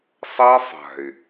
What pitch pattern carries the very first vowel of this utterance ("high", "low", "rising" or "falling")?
high